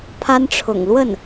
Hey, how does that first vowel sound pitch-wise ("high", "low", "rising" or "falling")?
high